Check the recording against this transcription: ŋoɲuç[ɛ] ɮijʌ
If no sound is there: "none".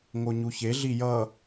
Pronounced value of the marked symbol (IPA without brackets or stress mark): e